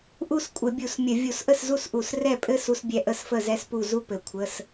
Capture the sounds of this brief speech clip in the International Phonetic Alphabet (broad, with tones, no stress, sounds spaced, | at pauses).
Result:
ʔ u˥˨ s kʷʼ ə˧˩˧ bʲ u˧˩˧ s mʲ ə˧˩˧ vʲ u˧˩˧ s ʔ ə˥˨ s z u˥˨ s ʔ u˧˩˧ s r ɛ˥˨ pʼ ɘ˥ s u˥ s bʲ ɛ˥˨ ʔ ə˥˨ s f ə˥˨ z ɛ˥ s p u˥˨ z u˥ p ɘ˧˩˧ kʷʰ ə˧˥˧ s